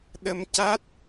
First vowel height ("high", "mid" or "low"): mid